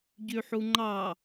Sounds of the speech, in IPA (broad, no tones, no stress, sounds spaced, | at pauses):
ɟ y ħ u ŋ͡ǃ ɑ